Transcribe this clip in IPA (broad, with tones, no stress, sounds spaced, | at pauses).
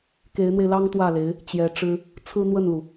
k e˧˥ ɪ̯ n̪ w e˧ ɪ̯ l ɑ˥ ŋ t̪ w ä˥˩ l e˧˥ ɪ̯ | t͡ɕ j ɛ˧˥ ʈ͡ʂ ɻ̩˥ | t͡sʰ ɹ̩˥ n̪ w ə˥˩ n l u˩